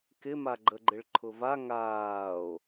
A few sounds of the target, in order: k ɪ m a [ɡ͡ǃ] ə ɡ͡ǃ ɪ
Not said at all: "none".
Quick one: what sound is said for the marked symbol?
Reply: ɡ͡ǃ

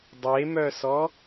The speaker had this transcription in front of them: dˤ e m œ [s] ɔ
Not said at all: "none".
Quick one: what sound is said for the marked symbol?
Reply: s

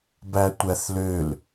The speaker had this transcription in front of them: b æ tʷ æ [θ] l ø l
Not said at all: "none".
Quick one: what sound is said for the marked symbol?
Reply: θ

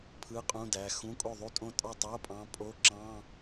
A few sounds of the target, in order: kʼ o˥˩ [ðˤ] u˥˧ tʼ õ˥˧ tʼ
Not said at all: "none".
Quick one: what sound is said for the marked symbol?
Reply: ðˤ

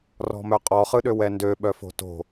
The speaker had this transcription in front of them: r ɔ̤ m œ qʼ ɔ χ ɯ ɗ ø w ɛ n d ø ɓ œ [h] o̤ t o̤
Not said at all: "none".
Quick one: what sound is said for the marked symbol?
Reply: f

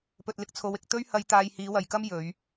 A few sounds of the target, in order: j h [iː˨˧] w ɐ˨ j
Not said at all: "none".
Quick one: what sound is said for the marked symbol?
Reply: iː˨˧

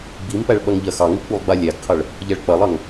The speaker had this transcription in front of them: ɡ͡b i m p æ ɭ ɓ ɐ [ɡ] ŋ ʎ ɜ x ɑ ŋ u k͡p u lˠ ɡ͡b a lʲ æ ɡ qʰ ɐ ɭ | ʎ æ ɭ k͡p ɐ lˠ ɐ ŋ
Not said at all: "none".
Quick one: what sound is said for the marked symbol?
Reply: none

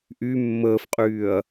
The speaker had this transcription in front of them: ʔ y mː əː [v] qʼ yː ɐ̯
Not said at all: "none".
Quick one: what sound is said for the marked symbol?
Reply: f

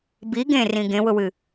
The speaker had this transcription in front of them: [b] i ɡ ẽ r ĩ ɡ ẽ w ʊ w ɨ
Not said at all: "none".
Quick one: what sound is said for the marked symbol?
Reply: b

